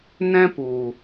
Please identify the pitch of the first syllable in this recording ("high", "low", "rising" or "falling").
high